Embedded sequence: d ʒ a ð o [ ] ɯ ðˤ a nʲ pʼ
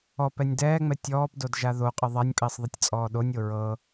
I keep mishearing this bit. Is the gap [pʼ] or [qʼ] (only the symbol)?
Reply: qʼ